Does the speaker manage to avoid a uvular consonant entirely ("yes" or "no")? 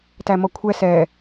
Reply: yes